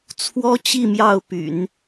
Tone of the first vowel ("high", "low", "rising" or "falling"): high